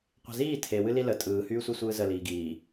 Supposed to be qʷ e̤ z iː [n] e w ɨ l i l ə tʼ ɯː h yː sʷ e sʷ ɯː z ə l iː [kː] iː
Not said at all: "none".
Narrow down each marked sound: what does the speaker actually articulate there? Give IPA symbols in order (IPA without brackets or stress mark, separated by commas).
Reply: tʰ, ɡ